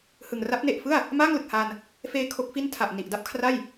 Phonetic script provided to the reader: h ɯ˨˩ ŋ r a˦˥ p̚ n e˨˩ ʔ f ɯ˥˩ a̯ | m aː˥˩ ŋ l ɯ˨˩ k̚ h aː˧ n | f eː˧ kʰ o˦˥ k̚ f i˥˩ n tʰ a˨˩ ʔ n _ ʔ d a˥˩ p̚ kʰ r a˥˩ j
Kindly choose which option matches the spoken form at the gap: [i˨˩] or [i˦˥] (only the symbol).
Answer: i˨˩